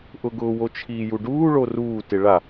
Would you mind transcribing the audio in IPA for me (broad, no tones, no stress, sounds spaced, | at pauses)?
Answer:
ʔ ʊ ɡ ʊː w o t͡ʃʰ iː j u ɖ uː ɭ o r uː t ɪ ɭ a